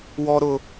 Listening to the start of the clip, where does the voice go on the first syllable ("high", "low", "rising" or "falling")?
high